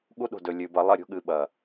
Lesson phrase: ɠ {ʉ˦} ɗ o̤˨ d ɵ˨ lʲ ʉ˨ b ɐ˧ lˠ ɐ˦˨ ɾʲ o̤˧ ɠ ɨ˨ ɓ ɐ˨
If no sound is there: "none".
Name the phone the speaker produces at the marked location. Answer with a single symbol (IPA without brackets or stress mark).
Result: u˦